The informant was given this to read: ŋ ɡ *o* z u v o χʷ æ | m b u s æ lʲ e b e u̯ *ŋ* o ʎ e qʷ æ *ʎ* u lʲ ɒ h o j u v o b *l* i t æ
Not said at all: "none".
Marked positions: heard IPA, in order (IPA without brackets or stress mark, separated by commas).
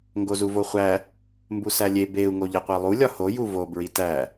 o, ŋ, lˠ, ɹ